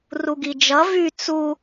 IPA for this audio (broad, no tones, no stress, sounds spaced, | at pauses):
r u ɡ i d͡ʒ ʌ v y t͡s u